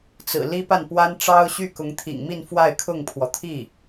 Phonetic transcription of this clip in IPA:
t͡s ɹ̩˨˩ l i˥ p a˥˩ n p w a˥ n ʈ͡ʂ ɑ˥ ʊ̯ ɕ y˥˩ k ʊ˧˥ ŋ t̪ʰ ḭ˨˩ ŋ m i˥˧ n f w a˥˧ ɪ̯ kʰ ʊ˥˩ ŋ pʰ w ɔ˩ t̪ʰ i˥˩

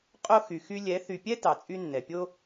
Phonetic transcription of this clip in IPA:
qʼ o˦ x y˨ x y˧ lʲ ɛ˨˦ θ y˨ pʲ ɛ˦ t ɑ˨ t͡sʼ y˦ nː ɛ˨ pʲ o˦

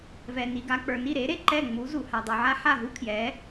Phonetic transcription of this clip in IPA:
v ɛ˩ n i˩ ɡ a˧ k͡p ə˞˩ n i˥˩ ɾ e˩˥ ɾ e˥˩ ǃ ɛ˥˩ ŋ͡m u˩˥ z u˩ h a˩ dˤ u˩ ʕ a˥ ħ a˥˩ ɦ u˥ kʰ j ɛ˩˥

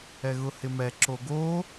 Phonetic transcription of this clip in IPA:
ɛ ɣ ʊ h ɪ m ɛ ǁ o ɡ o

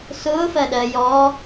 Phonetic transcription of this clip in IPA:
s ʊː f ɜ ɗ ɜ j ɔ

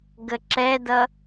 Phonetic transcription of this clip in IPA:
ɡ ə ǁ ɛ d ʌ

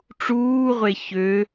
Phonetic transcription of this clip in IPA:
ʈ͡ʂ uː ʁʷ e ç ø

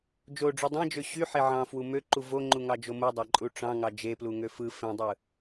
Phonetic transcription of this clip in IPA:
d͡ʒ o ɖ͡ʐ u dˤ ẽ d͡ʒ ø ɕ y ħ e ʕ ɑ̃ f w u m ø ǃ u v o ŋ͡ǃ u ŋ ɑ d͡ʒ o m u dˤ ɑ ǃʼ u ʈ͡ʂ ɑ̃ ŋ ɑ d͡ʒ e p l u ŋ ø f ɯ f ẽ dˤ ɯ

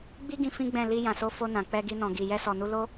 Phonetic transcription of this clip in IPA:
ɡ͡b i˦ ɡ ĩ˧ f ĩ˦ ɡ͡b ɛ̃˦˨ l i˧ j ã˨ s o˨˦ f o˧ n ã˨ k͡p ɛ˧ ɡ i˧ n ɔ̃˨ ɡ i˨ j ɛ˧ s ɔ˨ n u˧ l o˦

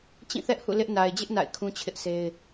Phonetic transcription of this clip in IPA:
t͡ɕ ĩ˦˨ θ ɛ˦ ʔ h ṵ˦˨ l ɪ˦ ʔ n a˨ ɪ̯ d͡ʑ ɪ˦ ʔ n a̰˦˨ ɪ̯ kʰ ũ˦ t͡ɕʰ ɪ˦ ʔ sʰ e˦ ɪ̯

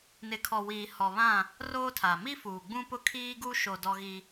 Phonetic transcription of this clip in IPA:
n ɪ˨ kʰ ɔ˨ w iː˨ h ɔ˨ β ã˦˨ | r oː˦ tʰ a˨ m i˦ f uː˨ ɡ͡b ũ˦ p ʊ˦ kʰ iː˦ ɡ u˦ ʃ o˨ d ɔ˦ ɣ i˦

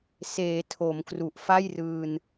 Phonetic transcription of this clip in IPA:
s eː˩˦ tʰ o˩˦ m k r u˨˩ ʔ f a˥˩ j r ɯː˧ n

